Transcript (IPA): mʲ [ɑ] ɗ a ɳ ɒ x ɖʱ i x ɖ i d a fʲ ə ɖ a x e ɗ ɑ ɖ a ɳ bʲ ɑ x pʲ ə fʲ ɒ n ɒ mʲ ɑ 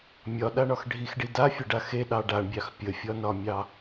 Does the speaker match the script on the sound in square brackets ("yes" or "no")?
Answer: no